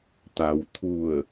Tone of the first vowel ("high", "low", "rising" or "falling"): low